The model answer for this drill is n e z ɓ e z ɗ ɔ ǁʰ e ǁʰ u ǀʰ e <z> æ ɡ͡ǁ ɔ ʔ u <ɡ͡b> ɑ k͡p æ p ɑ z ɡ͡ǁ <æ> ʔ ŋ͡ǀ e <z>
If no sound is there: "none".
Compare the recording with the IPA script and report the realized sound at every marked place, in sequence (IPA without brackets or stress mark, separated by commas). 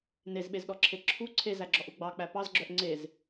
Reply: z, ɡ͡b, œ, z